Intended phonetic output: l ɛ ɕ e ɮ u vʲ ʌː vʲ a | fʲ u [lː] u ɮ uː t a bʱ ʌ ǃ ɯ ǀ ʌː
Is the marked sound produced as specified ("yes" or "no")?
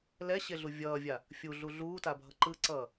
no